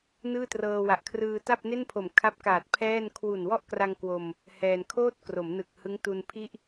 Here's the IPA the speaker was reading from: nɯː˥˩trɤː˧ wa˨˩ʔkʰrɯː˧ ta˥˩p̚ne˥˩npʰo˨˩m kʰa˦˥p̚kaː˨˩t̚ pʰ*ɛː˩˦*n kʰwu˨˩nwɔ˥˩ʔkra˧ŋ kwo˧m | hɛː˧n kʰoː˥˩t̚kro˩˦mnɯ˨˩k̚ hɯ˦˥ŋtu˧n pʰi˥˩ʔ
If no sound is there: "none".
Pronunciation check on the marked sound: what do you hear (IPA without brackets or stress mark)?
ɛː˥˩